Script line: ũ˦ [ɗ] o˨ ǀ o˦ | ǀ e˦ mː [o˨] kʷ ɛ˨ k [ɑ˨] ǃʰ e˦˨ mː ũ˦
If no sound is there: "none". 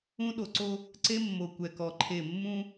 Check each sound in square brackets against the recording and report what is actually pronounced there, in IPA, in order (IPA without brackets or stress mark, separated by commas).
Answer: ɗ, o˨, ɔ˨